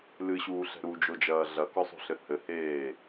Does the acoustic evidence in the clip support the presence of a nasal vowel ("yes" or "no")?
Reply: no